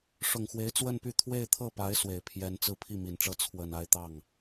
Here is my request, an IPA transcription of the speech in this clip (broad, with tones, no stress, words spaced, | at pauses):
ʂʊ˨˩ŋxwe˧˥ɪ̯ t͡swə˥˧npy˥˧ t̪ʰwe˥˧ɪ̯t̪ʰɤ˥˩pa˧˥ɪ̯ swe˨˩ɪ̯pʰjɛ˧˥nt͡sɹ̩˥˧ pʰi˥˩mi˨˩nʈ͡ʂɤ˥˩ t͡sʰwə˨˩n a˥˧ɪ̯t̪ɑ˥˩ŋ